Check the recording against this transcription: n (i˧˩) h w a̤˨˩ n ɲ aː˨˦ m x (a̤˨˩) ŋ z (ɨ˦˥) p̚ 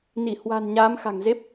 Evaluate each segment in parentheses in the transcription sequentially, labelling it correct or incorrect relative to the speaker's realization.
correct, correct, incorrect: e˦˥

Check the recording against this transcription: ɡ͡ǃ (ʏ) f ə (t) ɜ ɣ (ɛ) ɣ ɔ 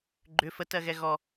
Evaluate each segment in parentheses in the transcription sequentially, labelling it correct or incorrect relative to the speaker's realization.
correct, correct, correct

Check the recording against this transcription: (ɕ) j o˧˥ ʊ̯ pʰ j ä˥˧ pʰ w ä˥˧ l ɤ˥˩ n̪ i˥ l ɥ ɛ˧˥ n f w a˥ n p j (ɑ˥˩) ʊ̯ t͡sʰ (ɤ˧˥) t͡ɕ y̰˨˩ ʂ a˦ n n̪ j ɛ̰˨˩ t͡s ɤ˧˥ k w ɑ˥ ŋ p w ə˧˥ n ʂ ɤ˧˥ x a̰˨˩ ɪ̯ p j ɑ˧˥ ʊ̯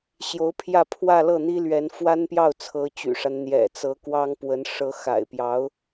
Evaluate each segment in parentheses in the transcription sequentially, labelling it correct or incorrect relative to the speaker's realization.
correct, correct, correct

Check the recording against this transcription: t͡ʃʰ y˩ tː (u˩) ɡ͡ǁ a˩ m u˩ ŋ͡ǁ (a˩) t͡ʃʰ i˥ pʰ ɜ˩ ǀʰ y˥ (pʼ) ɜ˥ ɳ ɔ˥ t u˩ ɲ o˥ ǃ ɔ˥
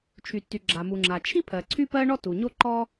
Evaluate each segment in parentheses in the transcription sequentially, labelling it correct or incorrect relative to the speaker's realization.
incorrect: y˩, correct, incorrect: p

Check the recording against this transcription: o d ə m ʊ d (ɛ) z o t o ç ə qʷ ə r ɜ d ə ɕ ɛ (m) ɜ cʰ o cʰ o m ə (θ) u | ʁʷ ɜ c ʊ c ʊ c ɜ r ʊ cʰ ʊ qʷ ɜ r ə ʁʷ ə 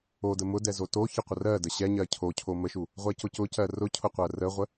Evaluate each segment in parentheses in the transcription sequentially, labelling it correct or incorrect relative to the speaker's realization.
correct, incorrect: ɲ, incorrect: ʃ

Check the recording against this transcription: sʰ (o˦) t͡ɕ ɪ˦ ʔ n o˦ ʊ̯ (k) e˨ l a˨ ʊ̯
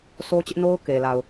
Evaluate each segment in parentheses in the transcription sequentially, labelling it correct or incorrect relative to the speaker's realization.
correct, correct

